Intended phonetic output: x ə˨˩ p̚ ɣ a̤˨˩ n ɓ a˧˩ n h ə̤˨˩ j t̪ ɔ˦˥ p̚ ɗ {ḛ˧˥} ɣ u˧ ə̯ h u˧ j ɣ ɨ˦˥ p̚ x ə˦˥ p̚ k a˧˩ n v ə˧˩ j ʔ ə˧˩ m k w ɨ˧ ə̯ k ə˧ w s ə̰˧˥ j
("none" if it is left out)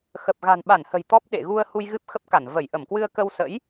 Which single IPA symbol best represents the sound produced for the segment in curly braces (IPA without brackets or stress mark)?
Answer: ḛ˧˨